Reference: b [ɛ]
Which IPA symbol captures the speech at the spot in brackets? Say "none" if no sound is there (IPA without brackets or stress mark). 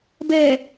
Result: ɛ